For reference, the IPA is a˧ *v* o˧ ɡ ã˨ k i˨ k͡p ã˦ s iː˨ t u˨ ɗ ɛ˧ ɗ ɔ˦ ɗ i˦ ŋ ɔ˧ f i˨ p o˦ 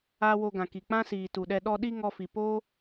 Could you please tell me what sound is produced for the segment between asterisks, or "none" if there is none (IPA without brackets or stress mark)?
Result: w